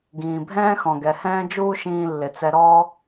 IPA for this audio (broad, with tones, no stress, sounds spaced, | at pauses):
ɡ ĩː˨ bʱ ɛ̃ː˦ x ɔ̃˨ ɡ ɛ˨ h ɛ̃ː˦ d͡ʒ uː˦ ʃ ĩː˧ lː ɪ˨ t͡s ɛ˧ ɾ ɔː˦